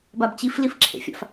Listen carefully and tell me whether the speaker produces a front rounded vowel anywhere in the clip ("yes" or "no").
no